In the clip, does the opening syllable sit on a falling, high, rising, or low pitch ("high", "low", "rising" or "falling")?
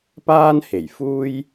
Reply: high